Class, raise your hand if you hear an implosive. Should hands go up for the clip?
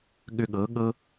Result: yes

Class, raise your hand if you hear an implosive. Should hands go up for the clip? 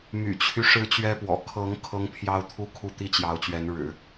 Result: no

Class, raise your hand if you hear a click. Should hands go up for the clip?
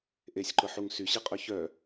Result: yes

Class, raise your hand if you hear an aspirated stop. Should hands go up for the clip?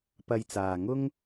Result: no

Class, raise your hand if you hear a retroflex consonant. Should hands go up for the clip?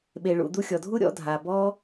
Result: yes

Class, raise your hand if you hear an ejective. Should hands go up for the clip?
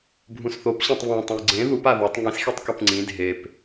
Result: no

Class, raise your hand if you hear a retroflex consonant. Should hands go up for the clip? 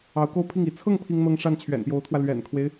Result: yes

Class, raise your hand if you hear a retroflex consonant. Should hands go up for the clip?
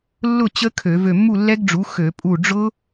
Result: yes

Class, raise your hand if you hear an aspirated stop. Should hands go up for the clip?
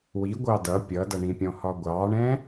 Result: no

